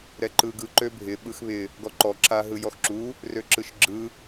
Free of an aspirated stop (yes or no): yes